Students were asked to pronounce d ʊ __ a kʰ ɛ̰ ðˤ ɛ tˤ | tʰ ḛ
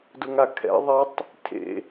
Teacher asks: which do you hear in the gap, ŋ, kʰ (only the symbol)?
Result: ŋ